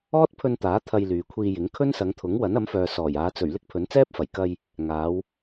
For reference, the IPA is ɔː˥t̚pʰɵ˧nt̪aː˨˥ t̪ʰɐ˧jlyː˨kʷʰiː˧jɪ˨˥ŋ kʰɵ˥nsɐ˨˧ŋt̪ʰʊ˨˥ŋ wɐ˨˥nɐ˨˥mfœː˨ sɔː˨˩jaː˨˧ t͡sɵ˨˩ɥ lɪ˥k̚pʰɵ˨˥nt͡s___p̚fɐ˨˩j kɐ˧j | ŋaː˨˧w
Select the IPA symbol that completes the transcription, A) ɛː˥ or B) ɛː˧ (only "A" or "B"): A